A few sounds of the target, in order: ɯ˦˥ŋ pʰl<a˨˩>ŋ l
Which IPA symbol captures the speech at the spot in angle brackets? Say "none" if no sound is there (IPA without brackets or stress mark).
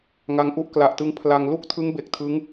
a˧